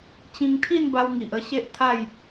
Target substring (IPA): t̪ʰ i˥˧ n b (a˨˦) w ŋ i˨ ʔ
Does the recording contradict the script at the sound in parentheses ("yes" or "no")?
yes